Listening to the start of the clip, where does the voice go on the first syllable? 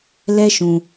high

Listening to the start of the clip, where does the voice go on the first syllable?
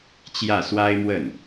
falling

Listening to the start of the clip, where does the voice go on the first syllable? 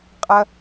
low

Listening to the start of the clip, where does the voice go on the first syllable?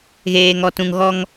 low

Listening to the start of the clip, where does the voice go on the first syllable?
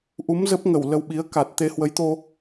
rising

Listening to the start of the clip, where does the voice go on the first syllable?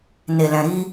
low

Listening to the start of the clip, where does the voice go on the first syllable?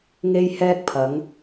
high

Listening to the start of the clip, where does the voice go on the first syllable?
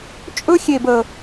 high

